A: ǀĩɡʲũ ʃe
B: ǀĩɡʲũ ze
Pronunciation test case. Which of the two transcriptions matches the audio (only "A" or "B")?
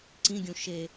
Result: A